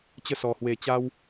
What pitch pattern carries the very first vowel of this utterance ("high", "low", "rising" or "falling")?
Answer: falling